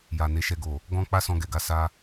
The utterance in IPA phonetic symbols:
j a˨ n e˨˦ ʃ ɛ˧ ɡ o˨ | ɡ ɔ̃˧ k͡p a˦ s ɔ̃˧ ɡ ɛ˨ ɡ a˧ s a˧

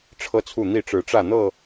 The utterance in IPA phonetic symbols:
ʈ͡ʂʰ ɤ˦ t͡sʰ u˥˨ n̪ i˥˨ ʈ͡ʂ ɻ̩˨˦ ʈ͡ʂ ä˥˨ n̪ ɤ˥˨

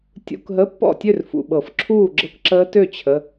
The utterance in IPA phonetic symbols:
tʲ ṵ˧˥˧ k ɦ ə˧˥˧ pː ɔ̰˥˨ tʲ ø˥˨ r f ṵ˨ ɓ ɤ˨˩˦ f ǁʰ uː˥˨ ɡ͡ǁ ɤ˦˥ k ǁ əː˦˥ t ø˥˨ t͡ɕʰ ə˧˥˧

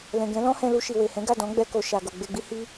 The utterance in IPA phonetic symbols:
l ɛ̃˨ ɡ ɛ̃˨˦ l ɔ̃˦ h ɛ̃˧ l u˧ ʃ i˨ w e˨ h ɛ̃˨˦ ɡ a˦˨ d ɔ̃˨˦ ɡ͡b ɛ˧ k o˨ ʃ a˨ ɡ o˨ ɡ͡b e˧ ɡ͡b i˦ h i˦

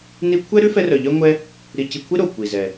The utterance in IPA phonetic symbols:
n i˥ kʷʰ ɛ˥ ɾ ʉ˥ f ɛ˥ r œ˧ ʎ œ˥ ŋʷ ɛ˥ | ɾ i˧ c i˧ kʷʰ i˥ ɾ o˩ kʷ i˩ z ɛ˩

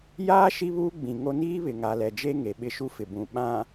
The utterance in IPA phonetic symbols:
j aː˦ ʃ i˦ β uː˦ ɡ͡b ĩ˨ ŋ o˦ n iː˦ β ɪ˨ ŋ a˨ l ɛ˨ d͡ʒ e˦ ŋ e˨ ɓ ɪ˦ ʃ u˦ f ɪ˨ b ũ˨ ɓ ã˨

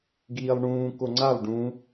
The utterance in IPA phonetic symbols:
ɡ iː lˠ ɳ ũː k o ŋ͡ǀ a lˠ ɖ ũ

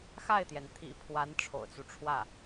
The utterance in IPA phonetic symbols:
x a˥˩ ɪ̯ t̪ j ɛ˩ n t̪ʰ ḭ˨˩ pʰ w a˧˥ n ʈ͡ʂʰ o̰˨˩ ʊ̯ t͡s u˦ ʈ͡ʂʰ w ä˥˩

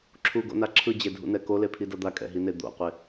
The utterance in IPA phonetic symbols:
ǁʰ u ɡ o̰ n a ǁʰ ɯ d͡ʑ e dʱ ṵ n ɛ k o l e pʰ i d ʌ d̪ a kʼ ɛ̰ ɦ i n e d̪ o̰ qʷ e

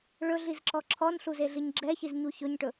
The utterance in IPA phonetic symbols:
ɭ ɵ ɮ i z ǁ ɔ ǁʰ ɔ n ɬ u z e ɮ i ɲ ɡ͡ǁ ɛ ç i z ɲ u ç ɵ ɲ ʈ ɵ

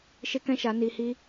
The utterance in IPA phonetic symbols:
ʃ e˦ k ɛ̃˦ ʃ a˨˦ n iː˧ h iː˦

